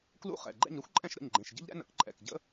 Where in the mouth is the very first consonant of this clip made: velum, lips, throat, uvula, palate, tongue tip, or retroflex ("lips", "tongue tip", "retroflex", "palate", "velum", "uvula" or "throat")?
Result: velum